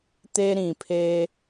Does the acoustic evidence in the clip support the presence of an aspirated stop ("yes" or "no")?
yes